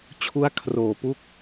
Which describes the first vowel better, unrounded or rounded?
rounded